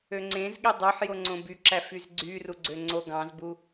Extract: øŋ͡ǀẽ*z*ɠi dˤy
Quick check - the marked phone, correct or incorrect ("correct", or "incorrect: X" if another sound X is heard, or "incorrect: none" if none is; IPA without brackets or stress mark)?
correct